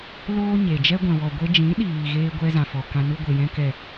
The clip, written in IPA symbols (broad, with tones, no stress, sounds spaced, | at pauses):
l oː˦ ɲ e˨ d͡ʒ ɛ˦ ɡʷ ɛ̃˨ w ɔ˨ ɡʷ e˧ d͡ʒ ĩ˨˦ ɗ iː˨ ɣ eː˧ ɡʷ ɛ˦ z ã˨ f ɔ˨ k ã˧ n u˧ ɡʷ e˨ j ɛ̃˧ k ɛ˨